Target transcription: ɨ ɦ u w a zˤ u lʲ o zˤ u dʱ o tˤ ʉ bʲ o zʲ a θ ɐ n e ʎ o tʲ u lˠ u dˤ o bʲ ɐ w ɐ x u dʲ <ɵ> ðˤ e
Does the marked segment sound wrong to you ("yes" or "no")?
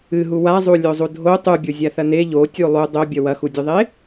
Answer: no